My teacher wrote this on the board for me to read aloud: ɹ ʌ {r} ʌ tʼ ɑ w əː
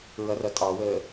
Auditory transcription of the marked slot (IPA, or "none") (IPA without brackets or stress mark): r